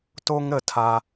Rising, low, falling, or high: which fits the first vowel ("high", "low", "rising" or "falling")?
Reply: high